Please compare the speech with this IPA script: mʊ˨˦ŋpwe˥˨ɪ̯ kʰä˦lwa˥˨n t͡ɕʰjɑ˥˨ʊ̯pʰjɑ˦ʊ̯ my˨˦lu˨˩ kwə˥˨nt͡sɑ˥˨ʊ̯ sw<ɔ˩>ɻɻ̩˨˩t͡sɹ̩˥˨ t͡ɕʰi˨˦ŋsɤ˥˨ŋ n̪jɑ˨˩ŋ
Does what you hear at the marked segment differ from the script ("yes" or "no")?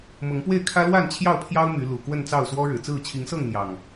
yes